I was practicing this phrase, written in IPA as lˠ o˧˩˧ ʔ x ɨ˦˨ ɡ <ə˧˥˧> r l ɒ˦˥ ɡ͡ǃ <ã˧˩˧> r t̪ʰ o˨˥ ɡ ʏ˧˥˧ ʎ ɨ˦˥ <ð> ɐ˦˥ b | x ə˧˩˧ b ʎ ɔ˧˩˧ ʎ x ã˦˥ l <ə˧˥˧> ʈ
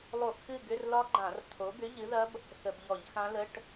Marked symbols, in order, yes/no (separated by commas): no, yes, yes, yes